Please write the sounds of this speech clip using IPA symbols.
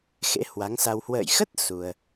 xḛ˧˥hwa˨˦ŋsa˧w hwə̰ː˧˨jxə˦˥t̚ su˧ə̯

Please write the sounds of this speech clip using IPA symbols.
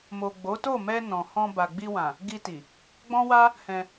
mo˨ ɡ͡bo˨˦to˦˨mɛ˧ nɔ̃˨hɔ̃˧ ba˨ɡ͡bi˧wã˨ | ɡi˧ti˨ | ɡ͡bɔ̃˦wa˦ | hɛ̃˧

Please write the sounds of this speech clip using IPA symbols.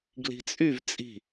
ɡli̤t͡sʼyv t͡sʼi̤

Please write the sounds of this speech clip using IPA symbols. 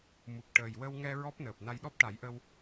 mu˨˩k̚ʈəː˨˩jwə˧wŋɛ˧ ɹɔ˦˥p̚nəː˨˩p̚ na˧jɗɔ˦˥p̚ʈa˨˩˦jʔə˧w

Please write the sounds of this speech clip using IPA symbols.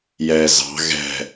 jɛ zɑ̤ ɣɛ̤

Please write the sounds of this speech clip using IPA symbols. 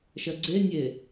ʃɐɡ͡ǀenʲe

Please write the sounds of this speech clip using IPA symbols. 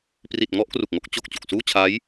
pri˨˩t̚ŋɔ˥˩ʔ kru˨˩k̚ŋo˥˩k̚ t͡ɕo˨˩k̚ t͡ɕu˨˩k̚suː˥˩t͡ɕʰaː˦˥j

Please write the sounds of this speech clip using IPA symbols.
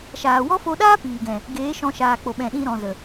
ʃaː˨wɔ˦fo˧ɗaː˦ piː˨ɡɛ̃˨ | ɡeː˨˦ʃɔ̃˧ ʃaː˨k͡po˨ɓɛ̃˨ ɗĩ˧ɾɔ̃˨zə˨

